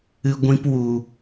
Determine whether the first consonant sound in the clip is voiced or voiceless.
voiced